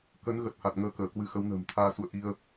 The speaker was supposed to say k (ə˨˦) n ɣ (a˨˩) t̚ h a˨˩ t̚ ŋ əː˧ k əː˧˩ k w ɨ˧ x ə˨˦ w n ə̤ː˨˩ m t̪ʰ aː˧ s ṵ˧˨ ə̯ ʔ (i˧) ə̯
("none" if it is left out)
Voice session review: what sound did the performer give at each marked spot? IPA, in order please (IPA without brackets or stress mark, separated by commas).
ə˨˦, ə˨˩, i˧